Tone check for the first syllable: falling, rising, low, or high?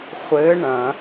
rising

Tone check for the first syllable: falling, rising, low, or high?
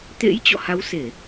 rising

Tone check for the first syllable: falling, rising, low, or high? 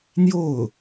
falling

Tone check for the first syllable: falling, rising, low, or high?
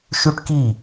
high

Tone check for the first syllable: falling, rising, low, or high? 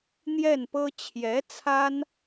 falling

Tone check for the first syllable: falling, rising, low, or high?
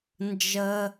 high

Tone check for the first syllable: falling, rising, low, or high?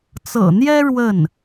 low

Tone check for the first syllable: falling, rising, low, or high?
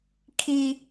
high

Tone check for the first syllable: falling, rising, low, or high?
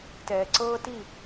low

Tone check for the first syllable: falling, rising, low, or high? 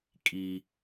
low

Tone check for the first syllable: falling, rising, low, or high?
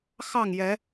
falling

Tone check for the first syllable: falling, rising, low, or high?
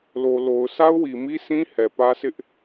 low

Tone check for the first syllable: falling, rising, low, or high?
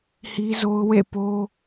high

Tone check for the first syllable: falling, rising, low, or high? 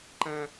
high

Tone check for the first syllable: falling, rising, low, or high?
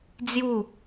falling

